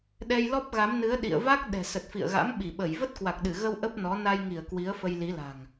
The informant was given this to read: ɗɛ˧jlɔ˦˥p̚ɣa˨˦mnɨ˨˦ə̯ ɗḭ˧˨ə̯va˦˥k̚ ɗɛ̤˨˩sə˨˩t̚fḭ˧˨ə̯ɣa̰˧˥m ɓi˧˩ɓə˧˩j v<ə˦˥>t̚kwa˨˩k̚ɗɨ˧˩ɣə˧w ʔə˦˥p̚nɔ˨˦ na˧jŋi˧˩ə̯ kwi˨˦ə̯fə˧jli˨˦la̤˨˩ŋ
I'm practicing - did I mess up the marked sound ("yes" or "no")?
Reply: no